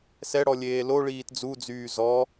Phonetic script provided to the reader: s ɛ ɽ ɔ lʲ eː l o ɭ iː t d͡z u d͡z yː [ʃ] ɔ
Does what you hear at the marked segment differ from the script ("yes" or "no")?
yes